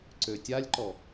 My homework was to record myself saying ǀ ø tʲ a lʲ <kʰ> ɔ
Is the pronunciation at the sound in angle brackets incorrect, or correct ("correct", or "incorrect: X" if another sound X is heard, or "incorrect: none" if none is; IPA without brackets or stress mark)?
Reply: incorrect: ǃ